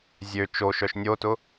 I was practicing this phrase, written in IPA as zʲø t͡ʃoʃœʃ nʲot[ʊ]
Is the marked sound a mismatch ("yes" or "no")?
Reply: no